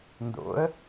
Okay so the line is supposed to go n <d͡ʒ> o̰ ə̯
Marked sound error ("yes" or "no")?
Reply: yes